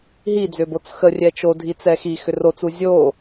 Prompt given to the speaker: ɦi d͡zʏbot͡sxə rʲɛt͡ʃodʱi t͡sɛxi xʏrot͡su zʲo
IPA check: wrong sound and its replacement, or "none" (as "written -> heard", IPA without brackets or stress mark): none